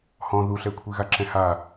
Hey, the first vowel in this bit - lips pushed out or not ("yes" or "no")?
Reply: yes